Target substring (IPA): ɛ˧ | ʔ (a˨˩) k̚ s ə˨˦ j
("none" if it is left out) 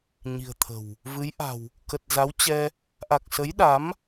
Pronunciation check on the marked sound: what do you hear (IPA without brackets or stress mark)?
a˨˩